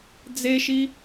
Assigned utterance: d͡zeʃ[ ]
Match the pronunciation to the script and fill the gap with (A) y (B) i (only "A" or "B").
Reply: B